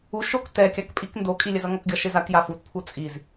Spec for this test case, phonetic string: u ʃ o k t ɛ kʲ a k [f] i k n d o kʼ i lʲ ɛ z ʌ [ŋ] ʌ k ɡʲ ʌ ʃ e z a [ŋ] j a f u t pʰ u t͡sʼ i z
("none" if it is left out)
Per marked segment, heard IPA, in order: pʼ, ŋ, k

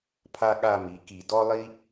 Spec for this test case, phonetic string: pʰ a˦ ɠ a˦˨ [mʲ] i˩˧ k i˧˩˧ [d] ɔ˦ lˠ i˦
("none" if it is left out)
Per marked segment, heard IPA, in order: m, d

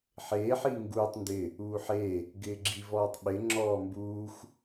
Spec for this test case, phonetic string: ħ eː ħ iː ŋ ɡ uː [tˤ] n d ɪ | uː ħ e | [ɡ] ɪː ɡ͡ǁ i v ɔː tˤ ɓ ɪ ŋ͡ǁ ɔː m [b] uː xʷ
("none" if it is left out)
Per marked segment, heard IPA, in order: tˤ, ɡ, b

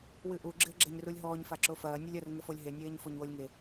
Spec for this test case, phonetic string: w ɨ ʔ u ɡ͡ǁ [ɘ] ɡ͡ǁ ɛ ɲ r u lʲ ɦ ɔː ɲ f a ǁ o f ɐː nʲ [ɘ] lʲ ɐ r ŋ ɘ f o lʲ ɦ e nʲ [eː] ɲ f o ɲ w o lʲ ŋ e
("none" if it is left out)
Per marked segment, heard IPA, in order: ɘ, ɘ, eː

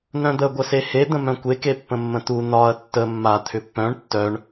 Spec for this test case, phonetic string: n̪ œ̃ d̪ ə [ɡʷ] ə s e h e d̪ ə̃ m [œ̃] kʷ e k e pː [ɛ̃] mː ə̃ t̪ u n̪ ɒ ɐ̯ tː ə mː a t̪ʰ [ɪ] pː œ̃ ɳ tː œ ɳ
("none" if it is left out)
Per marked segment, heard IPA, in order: ɡʷ, œ̃, ə̃, ʏ

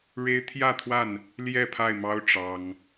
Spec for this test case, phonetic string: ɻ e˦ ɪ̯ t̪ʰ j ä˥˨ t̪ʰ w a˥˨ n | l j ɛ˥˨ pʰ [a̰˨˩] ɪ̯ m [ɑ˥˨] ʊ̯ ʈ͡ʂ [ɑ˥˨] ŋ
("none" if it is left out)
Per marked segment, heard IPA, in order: a˥˨, ɑ˦, ɑ˦

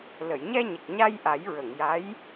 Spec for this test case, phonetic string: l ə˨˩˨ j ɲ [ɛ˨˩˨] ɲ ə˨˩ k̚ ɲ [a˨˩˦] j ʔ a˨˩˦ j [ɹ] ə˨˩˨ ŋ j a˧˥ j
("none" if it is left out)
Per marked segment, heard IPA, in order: ɛ˧, a˧, ɹ

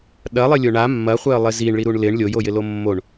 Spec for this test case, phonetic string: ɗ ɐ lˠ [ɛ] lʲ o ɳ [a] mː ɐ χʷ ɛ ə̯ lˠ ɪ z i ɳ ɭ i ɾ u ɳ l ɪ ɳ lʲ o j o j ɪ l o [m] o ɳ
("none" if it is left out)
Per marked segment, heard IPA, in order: ɪ, a, mː

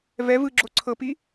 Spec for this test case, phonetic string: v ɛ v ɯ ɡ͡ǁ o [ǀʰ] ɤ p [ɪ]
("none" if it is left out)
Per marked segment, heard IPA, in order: ǀʰ, i

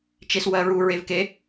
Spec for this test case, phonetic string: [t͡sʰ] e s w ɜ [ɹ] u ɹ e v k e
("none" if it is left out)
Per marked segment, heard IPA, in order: t͡ʃ, ɹ

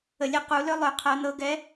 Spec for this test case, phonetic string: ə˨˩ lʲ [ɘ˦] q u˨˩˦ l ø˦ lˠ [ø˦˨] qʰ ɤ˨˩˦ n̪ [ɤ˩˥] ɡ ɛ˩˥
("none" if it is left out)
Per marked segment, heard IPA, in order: ɛ˦, ø˨˩˦, ɤ˩˥

